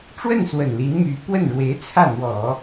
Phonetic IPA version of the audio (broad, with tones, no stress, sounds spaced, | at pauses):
ʈ͡ʂ w ə˥˩ n s w ə˨˩ n l i˧˥ n m y˧˥ p w ə˥˩ n ɻ w e˧˥ ɪ̯ t͡sʰ ä˥˩ n̪ w ɔ˨˩˦